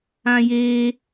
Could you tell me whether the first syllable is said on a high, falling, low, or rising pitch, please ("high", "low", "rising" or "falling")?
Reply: high